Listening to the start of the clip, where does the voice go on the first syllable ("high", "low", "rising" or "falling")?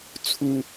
high